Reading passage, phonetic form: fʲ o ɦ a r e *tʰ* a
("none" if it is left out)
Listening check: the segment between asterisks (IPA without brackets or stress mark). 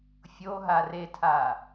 tʰ